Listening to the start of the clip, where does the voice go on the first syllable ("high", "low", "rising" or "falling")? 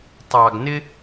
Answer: low